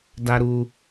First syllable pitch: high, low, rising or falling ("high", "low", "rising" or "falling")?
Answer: high